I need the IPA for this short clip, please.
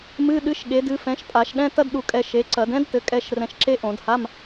m ɨ˧˥˧ ɗ ɨ˨˥ ʃ ɠ e˨˥ d ɨ˨˥ f ɛ̃˨˥ ʃ pʼ a˧˩˧ ʃ ɗ ɛ̃˧˥˧ t ɐ˥ d ɗ u˧ kʼ ɛ˧ ʃ e˨˥ ǀ ɐ˧˩˧ d ɛ̃˥ d t ɘ˨˥ kʼ ɛ˧˥˧ ʃ r ɛ̃˧ ʃ ǁ e˥ ʔ õ˧˩˧ d h a˧˥˧ m

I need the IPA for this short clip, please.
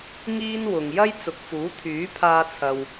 ŋ iː˥ n w ʊ˨ ŋ j ɐ˥ j t͡s ʊ˨ k̚ f uː˨˥ t̪ʰ yː˨˥ pʰ aː˧ t͡sʰ ɐ˨ w

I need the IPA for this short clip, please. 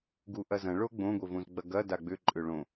ɡ u ʔ ɐ z ɐ̃ ɭ o ɡ͡b õ ɡʷ e v õ z ɡ͡b ɐ ɡ ɐ d a ɡ͡b ʏ ǃʼ ʏ ɭ õ

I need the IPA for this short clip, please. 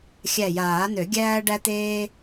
xʲ æ˧˩ j aː˨˩˦ n̪ ø˨˩˦ ɡʲ æː˥ ɖ æ˥ t̪ eː˥

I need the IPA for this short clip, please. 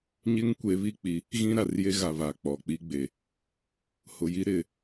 ɲ ɪ˦ ŋ kʷ e˨˦ β i˦ k͡p i˨˦ | ɣ ĩ˦ ɾ a˨ r j e˦ ɣ a˨ β a˨ k͡p ɔ˨ k͡p i˦ ɡ͡b e˨ | h ʊ˨ j i˦ ɾ ɪ˨

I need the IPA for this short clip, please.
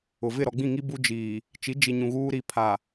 ʊ˨ v ɪ˦˨ ɾ ɔ˨ ɡ͡b ĩ˦˨ ŋ i˦ b u˦ d͡ʒ iː˨ | t͡ʃ i˨˦ d͡ʒ i˨ ɲ ũ˨ ɣ uː˦ ɾ i˨ pʰ a˨

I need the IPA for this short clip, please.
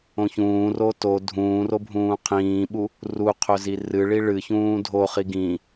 õ ç ũː r o t o dʱ ũː r o bʱ ũː qʰ ĩː ɓ u | r u qʰ ɵ z i r ɨ ɭ i ɭ ɨ ç ũː dʱ o χ i ɡ ĩ

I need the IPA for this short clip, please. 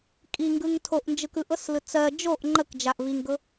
kʼ i ŋ ɡ ɯ ŋ tʰ o ʔ n d͡ʒ ɯ k ɯ ʔ ɤ s l ɯ t͡s ɜ d͡ʒ o ʔ ŋ͡ǃ ə k d͡ʒ a ʔ v i ŋ ɡ ɤ

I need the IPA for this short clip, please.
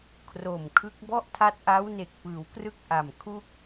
kʰ r o˨˩ m kʰ ɯ˦˥ k̚ b ɔ˥˩ ʔ tʰ a˦˥ t̚ ʔ a˦˥ w n e˨˩ k̚ p ɯː˩˦ w k r ɯ˥˩ k̚ ʔ a˨˩ m kʰ u˥˩ k̚

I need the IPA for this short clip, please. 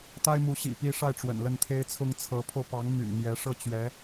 t̪ a˥ ɪ̯ m u˧˥ ɕ ḭ˨˩ p i˥˧ ʂ a˥˩ ɪ̯ ʈ͡ʂ w ə̰˨˩ n l ə˥˩ n t̪ʰ e˥ ɪ̯ t͡sʰ ʊ˥ ŋ t͡sʰ ɤ˧˥ pʰ o˧ ʊ̯ p ɑ˧˥ ŋ m y̰˨˩ n m j ɛ˧˥ ʂ ɤ˥˩ t͡ɕ ɥ ɛ˧˥

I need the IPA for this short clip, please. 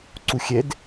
ǀ u xʲ ɛ d

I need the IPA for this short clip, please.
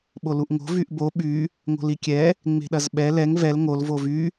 ɓ o l u ʔ ŋ o̤ v y ʔ b o ɓ y | ŋ o̤ l i kʲ ɛ | ŋ͡m e̤ ɗ ɐ z ɓ ɛ l ɛ ŋ v ɛ l ŋ o l v o v y

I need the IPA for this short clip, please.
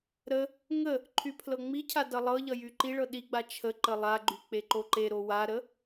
ɾ ə | ŋ ə | ǃʰ y pʰ l ɤ ŋ͡m i cʰ a d ʌ lˠ ɤ ʎ ʌ j y ǃ i ɭ ɤ ɗ i ɡ͡b a t͡ʃʰ ə ǃ ə lˠ a ɡ͡ǃ y k͡p e ǃ o ǃ e ɾ o w a ɾ ə

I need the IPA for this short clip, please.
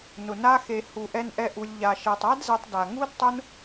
n ʊ˨ n a˦ x e˧ h u˧ ʔ ɛ˦ n ʔ ɛ˦ ʔ u˧ lʲ ʎ a˨ ʃ ɛ˨ tˤ a˦ d z ɛ˧ tˤ d a˨ ŋ u˦ d tˤ ʊ˦ n

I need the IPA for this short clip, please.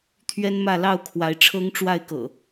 t̪ʰ ɥ ɛ˦ n m ä˥˨ l ɑ˥˨ ʊ̯ kʰ w a˨˦ ɪ̯ ʈ͡ʂʰ ɤ˦ ŋ ʈ͡ʂ w a˥˨ ɪ̯ k ɤ̰˨˩

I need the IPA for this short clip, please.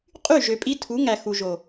qʼ y˦˨ ʒ ø˨ pʼ i˦ tʰ u˨˦ ŋ æ˨ x u˨ ʒ o˨

